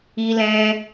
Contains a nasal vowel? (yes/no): yes